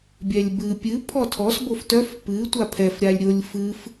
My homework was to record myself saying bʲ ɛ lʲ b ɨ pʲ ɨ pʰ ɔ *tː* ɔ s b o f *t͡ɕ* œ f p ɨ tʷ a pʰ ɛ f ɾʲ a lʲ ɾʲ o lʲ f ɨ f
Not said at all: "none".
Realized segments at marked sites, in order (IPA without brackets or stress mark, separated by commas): tʰ, t